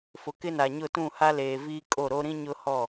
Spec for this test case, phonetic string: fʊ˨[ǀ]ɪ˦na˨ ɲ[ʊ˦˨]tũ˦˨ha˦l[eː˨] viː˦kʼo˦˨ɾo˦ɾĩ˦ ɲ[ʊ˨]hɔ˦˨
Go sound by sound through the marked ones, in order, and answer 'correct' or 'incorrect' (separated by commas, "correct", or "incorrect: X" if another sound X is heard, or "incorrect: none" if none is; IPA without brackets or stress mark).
incorrect: k, correct, correct, incorrect: ʊ˦